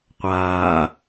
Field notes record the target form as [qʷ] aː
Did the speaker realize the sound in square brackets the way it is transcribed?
yes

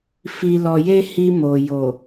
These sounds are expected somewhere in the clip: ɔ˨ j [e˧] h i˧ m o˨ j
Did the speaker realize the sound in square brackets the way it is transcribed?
yes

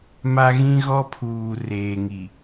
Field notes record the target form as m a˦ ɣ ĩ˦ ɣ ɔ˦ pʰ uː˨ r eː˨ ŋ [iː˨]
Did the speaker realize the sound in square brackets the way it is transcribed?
no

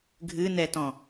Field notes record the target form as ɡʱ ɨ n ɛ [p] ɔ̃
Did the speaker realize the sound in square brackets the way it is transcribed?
no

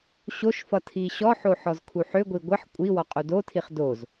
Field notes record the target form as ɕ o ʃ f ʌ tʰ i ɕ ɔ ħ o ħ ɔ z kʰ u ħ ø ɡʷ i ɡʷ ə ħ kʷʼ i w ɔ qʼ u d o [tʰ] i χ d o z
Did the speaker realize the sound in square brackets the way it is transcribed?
yes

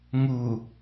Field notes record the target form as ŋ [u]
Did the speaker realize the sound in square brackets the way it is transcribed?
yes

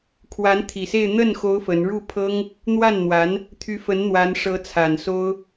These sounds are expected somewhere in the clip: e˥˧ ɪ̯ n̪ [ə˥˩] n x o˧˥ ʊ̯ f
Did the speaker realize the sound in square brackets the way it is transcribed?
yes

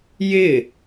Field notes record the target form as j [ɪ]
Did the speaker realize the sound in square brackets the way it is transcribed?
yes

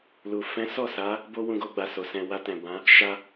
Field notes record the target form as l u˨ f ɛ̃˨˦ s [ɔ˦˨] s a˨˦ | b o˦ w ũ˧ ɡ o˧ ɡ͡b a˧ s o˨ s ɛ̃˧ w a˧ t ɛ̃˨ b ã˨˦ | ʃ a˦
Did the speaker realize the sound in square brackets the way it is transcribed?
yes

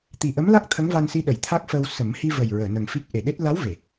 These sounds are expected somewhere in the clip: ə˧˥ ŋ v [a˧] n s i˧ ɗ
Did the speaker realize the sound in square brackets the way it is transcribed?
yes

